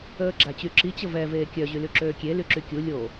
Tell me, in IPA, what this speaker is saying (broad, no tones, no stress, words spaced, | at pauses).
əːɡ͡ǁat͡ɕyǁi t͡ɕəvɛ veːkʲœ ʑylyǁøːkʲe lyǁykʲu lʲo